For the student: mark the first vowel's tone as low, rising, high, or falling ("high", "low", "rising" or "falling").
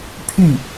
falling